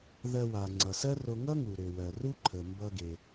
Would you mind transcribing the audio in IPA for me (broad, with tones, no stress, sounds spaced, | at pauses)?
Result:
ð ɜ˧ w a˩ ŋ͡ǀ ʌ˩ s ɜ˥ r o˧ ŋ ʌ˥ ŋ u˩ ɾ ø˩ w ɜ˩ r u˥ ǃʰ ə˩ m b ʌ˧ ɡ e˩